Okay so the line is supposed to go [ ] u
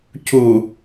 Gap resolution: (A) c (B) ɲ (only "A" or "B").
A